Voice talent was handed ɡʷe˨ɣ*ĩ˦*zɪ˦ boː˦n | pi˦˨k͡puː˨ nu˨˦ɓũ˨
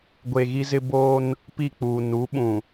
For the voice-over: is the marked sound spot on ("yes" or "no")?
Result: no